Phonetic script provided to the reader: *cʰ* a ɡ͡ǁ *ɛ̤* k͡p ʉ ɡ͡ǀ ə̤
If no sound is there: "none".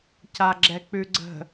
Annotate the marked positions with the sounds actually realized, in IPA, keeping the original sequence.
c, ɛ

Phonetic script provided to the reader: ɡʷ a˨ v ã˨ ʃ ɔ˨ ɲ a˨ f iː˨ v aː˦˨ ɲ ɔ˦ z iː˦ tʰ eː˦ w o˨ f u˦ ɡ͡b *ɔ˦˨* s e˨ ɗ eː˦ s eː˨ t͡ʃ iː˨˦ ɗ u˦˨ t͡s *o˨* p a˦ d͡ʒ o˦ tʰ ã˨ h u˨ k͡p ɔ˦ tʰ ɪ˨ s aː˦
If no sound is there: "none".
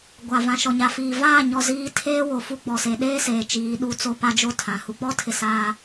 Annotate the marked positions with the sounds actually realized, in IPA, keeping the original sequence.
ɔ˨, o˦

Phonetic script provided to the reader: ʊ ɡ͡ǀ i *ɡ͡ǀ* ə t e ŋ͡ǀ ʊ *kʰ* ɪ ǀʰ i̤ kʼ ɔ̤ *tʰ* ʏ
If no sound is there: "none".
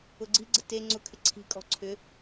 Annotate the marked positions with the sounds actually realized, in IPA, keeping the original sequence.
ɡ͡ǀ, kʰ, ǀʰ

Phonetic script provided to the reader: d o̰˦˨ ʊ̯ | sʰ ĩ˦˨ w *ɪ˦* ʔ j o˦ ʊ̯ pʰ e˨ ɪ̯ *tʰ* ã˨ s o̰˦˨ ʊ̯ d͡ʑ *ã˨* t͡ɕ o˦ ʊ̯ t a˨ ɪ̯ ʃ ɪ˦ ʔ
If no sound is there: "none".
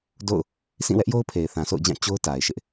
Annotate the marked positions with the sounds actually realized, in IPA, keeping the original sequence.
ɛ˦, θ, ã˦˨

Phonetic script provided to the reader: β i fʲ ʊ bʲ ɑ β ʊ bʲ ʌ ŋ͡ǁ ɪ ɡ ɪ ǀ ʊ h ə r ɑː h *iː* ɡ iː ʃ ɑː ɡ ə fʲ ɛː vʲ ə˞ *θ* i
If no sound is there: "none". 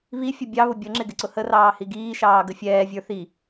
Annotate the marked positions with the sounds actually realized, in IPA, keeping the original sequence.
i, θ

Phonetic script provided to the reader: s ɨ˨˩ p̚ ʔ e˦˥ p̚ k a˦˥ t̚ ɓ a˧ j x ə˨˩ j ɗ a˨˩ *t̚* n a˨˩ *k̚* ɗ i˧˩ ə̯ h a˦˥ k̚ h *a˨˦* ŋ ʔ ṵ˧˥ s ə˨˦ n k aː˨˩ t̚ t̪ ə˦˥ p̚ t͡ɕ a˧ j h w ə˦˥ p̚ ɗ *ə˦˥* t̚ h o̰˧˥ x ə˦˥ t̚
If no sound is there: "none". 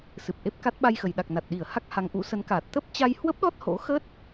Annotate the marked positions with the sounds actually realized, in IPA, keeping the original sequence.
k̚, t̚, a˨˦, ɔ˦˥

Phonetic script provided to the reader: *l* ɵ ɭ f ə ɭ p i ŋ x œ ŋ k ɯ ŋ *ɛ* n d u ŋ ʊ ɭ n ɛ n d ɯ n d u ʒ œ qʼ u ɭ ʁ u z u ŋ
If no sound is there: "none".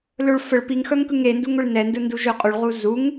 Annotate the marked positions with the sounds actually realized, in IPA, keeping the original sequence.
l, e

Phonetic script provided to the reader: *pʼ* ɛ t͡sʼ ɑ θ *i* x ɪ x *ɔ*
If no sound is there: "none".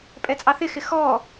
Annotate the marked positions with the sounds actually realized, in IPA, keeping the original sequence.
pʼ, ɪ, ɔ

